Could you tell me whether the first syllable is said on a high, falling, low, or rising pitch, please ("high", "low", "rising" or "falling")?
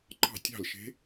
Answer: falling